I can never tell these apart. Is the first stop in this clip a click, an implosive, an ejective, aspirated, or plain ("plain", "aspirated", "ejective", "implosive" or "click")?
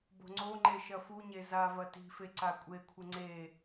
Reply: plain